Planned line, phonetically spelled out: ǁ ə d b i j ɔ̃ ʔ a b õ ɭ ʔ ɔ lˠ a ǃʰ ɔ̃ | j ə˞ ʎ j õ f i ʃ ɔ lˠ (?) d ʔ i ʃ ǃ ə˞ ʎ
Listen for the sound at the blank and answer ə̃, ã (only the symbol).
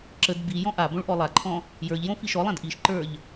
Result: ã